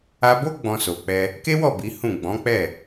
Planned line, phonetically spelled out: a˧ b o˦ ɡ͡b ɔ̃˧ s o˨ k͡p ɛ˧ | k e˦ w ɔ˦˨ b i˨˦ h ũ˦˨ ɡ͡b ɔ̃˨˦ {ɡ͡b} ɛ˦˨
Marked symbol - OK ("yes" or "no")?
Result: no